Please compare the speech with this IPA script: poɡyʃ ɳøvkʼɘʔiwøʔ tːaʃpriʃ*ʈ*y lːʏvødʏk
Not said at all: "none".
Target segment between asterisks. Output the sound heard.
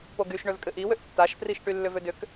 ʈ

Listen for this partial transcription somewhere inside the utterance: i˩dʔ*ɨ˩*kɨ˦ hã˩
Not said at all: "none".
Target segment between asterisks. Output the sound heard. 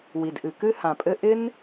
ɨ˩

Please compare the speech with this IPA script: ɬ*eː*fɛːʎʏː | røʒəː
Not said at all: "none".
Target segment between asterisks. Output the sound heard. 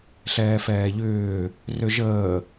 ɛː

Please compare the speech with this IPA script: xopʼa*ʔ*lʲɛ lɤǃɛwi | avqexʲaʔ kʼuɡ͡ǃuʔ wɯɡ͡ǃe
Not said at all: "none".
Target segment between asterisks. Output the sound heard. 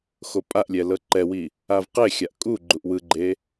ʔ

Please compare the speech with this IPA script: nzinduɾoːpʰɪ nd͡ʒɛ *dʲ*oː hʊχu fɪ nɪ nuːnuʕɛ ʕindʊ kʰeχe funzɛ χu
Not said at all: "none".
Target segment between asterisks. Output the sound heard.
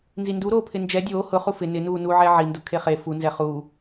dʲ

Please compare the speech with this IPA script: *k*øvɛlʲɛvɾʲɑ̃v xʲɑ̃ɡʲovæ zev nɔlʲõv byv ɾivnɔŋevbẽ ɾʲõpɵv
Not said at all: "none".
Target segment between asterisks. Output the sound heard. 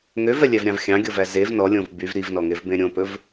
ŋ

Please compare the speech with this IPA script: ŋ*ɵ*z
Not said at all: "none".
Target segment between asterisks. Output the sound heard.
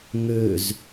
ø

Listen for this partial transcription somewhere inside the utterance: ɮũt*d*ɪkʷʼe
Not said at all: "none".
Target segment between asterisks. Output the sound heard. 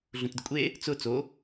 d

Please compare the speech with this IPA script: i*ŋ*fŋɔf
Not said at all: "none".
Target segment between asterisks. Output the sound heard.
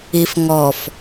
none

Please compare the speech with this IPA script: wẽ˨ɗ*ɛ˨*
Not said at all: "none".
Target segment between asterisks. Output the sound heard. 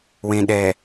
ɛ˨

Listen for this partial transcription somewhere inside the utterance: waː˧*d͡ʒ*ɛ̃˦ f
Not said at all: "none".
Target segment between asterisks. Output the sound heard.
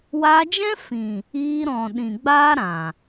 d͡ʒ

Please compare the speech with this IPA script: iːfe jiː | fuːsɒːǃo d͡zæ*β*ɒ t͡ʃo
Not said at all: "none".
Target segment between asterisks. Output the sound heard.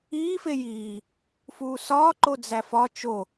f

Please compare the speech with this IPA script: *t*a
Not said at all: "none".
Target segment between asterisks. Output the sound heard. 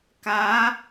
k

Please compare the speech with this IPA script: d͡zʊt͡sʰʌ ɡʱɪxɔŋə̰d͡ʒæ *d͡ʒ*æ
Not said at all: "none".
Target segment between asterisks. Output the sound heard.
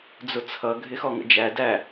d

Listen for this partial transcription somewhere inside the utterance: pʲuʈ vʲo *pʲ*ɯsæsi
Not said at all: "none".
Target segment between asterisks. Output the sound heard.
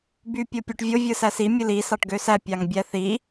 vʲ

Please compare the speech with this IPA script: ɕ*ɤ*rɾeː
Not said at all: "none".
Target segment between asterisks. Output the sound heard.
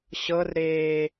ɤ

